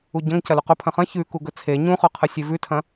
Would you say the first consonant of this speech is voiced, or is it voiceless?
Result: voiced